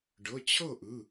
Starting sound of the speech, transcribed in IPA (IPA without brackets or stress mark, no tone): ɖ